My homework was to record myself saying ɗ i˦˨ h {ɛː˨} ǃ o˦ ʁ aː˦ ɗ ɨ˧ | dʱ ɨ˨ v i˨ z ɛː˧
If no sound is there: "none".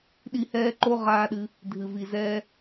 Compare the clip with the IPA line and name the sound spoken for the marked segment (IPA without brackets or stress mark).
ɛː˦